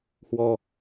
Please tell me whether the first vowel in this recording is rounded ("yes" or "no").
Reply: yes